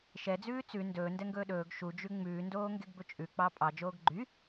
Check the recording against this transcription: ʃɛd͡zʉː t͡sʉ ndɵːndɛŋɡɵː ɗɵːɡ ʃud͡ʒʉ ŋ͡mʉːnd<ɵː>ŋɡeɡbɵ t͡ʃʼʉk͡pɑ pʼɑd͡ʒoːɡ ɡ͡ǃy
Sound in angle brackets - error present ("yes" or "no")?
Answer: yes